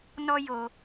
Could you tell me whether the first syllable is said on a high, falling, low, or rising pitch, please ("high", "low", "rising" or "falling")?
high